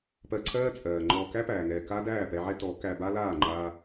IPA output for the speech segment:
p ɜ˧ ǀʰ ɜː˦ t͡sʼ ɜː˨ ŋ͡ǃ ɔː˧ k æ˦ p æː˨ ŋ ɛː˨ k a˦ d æː˦˨ p ɛ˧ ʕ ɛ˦ t ɔ˨˦ k æ˧ b a˦ l aː˦˨ ŋ͡ǃ aː˧

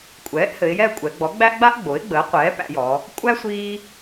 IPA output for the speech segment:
kʷʼ ɛː˩˥ ʔ h ɘ˩˧ ɪ̯ j ɛ˥˨ ə̯ kʷʼ ɛ˩˧ ɡ͡b ɔ˩˥ ɡ͡b æ˥ ʔ ɡ͡b a˥ ʔ ɡ͡b o˩˥ ɪ̯ ɡ͡b əː˩˥ qʷ ɛː˩˥ p æ̰˩˧ j ɔ˩˧ | kʷʼ æ˥ sʷ iː˥

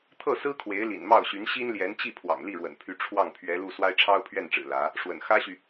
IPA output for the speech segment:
t̪ʰ ɤ˥˩ s ɹ̩˥ kʰ w e˧˥ ɪ̯ l ḭ˨˩ n m ɑ˥˩ ʊ̯ ɕ y˧˥ n ɕ i˥ n l j ɛ˧˥ n t͡ɕ i˥˩ pʰ w ɑ̰˨˩ ŋ l i˥˩ ɻ w ə̰˨˩ n pʰ y˧˥ ʈ͡ʂʰ w ɑ˥˩ ŋ pʰ ɥ ɛ˧˥ l u˥˩ s w a˥ ɪ̯ ʈ͡ʂʰ ɑ˥ ʊ̯ pʰ ɥ ɛ˥˩ n ʈ͡ʂ ɻ̩˨˩ l ä˧˥ | ʂ w ə̰˨˩ n x ä˥ ɕ y˨

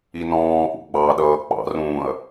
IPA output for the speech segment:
i n ɔ̃ː ʔ ṵ ɡ͡b ɑ ɗ ʌː k͡p ɑ̰ r ũː ɐ̯

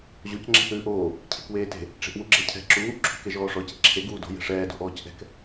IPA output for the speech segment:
ʑ o c ŋ͡ǁ ɛ̤ θ ʉː ʔ oː | cʰ e̤ k w eː t e̤ | ʈ͡ʂ e̤ ʔ w u ɡ͡ǁ ɛ cʰ ɛ̤ ǁ uː ʔ ǁʰ ṳ k e ʒ ɔː ʂ ɔ c e̤ ǁʰ e ɡ uː d o̤ j ɛ̤ ʂ ɛː d o̤ ʔ ɔː c ʔ ɛ̤ k

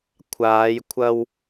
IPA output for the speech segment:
kʷʰ aː˨˧ j kʷʰ ɐ˧ w

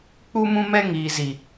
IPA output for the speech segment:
k͡p u˧ m ũ˧ m ɛ˧ ŋ iː˨ z i˨

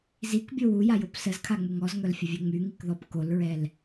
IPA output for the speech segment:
z i k bʲ o w u j a j o p s ə z kʰ a ŋ͡m u ŋ ɔ z ŋ œ l fʲ ə vʲ ɛ ŋ͡m y ŋ i k ð ɔ p k o l ɹ ɛ l

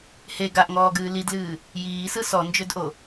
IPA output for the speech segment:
h e ɡ a ʔ ŋ ɔː ɡ ɨː l i d l ɨː | j iː s ɯ s ɔ n d͡ʒ ø d ʔ o

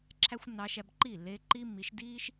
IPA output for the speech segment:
ǁʰ æ˦ xʷ nː ɑ˧ ʃ æ˧ b ǃ iː˦˨ lː eː˧ ǃ iː˦ mː i˨˦ ʃ d iː˦ ʃ

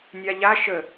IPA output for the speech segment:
nʲ a ʎ a ʃ ə

